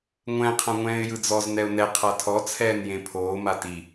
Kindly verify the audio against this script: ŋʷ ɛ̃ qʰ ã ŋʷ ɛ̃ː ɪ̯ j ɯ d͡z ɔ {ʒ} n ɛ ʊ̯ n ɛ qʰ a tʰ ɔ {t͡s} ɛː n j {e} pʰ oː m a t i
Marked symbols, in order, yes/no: no, no, no

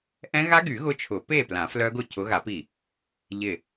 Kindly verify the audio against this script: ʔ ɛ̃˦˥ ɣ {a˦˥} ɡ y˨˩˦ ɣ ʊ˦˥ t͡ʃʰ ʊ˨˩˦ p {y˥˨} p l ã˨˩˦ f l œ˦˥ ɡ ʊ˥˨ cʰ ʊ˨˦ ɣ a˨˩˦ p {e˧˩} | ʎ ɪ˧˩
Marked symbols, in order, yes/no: yes, no, no

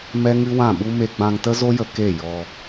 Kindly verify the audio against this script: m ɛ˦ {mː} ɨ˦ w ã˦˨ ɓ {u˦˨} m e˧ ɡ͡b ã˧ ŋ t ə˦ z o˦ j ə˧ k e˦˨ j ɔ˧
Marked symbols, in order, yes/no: no, no

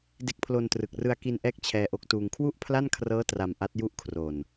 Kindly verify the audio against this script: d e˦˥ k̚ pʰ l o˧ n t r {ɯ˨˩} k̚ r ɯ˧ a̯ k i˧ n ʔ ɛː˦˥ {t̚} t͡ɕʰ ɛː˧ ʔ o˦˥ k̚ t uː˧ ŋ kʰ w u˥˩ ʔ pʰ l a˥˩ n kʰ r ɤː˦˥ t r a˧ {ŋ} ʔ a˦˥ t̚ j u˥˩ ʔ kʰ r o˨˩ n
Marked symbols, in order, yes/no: yes, no, no

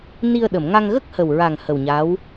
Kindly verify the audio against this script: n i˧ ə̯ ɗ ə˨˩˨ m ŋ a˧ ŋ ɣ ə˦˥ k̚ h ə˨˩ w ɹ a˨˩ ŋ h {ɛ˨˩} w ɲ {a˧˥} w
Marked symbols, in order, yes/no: no, yes

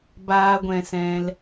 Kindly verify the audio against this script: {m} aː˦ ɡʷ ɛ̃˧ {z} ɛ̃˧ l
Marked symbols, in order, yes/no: no, no

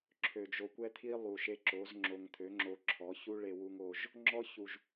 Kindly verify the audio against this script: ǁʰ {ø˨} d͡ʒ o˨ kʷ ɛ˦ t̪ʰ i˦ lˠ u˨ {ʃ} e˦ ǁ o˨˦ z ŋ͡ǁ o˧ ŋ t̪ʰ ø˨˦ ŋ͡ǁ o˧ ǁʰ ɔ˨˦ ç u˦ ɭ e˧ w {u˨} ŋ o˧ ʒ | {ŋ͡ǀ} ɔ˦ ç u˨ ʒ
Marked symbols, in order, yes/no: yes, yes, no, no

